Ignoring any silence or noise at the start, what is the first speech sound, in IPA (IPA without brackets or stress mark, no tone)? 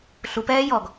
ɬ